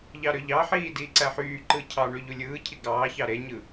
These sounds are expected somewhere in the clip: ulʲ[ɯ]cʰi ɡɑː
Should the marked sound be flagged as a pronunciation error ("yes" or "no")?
yes